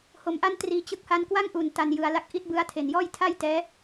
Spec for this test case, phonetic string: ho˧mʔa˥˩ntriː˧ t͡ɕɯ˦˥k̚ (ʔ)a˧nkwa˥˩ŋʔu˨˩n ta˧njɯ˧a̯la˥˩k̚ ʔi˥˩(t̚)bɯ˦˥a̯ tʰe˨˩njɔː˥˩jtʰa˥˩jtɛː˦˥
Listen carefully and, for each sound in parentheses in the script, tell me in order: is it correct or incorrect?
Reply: incorrect, correct

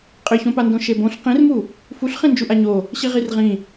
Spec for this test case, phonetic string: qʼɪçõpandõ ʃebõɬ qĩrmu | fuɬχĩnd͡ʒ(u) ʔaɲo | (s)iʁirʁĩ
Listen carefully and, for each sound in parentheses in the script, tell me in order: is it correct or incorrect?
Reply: correct, incorrect

